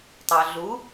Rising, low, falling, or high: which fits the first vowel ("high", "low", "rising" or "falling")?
low